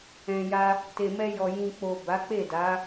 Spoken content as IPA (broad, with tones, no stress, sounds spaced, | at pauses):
ɛ̃˨ j a˧ | t e˨ m ɛ˧ j ɔ˨ j ĩ˨ k͡p o˨ b a˨˦ k͡p e˦˨ d a˨˦